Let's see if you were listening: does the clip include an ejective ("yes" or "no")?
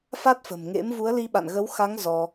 no